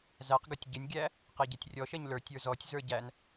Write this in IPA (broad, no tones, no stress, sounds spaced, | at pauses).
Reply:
z æ q ɡ ʌ tʲ ɟ ɪ nʲ ɡʲ æ | q ɛ ɟ ɛ tʲ rʲ ɔ ʃ ɛ ɲ l ə˞ tʲ ə˞ z ɔ tʲ z ə˞ ɟ æ n